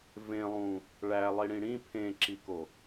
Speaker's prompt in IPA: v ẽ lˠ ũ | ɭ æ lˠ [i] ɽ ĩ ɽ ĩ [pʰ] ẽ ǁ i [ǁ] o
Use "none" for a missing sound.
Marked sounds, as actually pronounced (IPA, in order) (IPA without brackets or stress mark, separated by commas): i, pʰ, k